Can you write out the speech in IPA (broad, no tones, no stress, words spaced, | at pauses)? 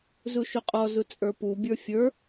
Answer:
zuʃuqʼɔzu t͡sʼə˞pubʲə˞ fʲə˞